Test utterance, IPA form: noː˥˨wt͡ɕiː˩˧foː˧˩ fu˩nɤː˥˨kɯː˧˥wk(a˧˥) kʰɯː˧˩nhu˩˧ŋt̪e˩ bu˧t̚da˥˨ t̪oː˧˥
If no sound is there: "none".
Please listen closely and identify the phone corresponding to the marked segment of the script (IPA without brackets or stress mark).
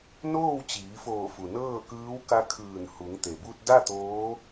a˧˥